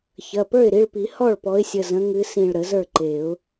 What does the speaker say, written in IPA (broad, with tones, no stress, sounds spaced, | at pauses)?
ç ɐ˩˧˩ p ə˞˥˩ ɪ̯ ɾ i˩˧˩ ɭ p i˨˩˦ h ɔ˥˩ ɭ p ɔ˨˦ ɪ̯ sʲ ə˩˧˩ z ə̃˨˦ ŋ ɨ˨˦ s ĩ˧˩ ɭ ɾ ə˨˩˦ z ə˞˥˩ ǃ e˨˩˦ ʊ̯